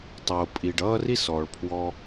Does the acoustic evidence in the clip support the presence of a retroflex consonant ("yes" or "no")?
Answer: yes